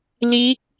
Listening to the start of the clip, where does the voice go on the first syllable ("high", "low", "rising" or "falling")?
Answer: rising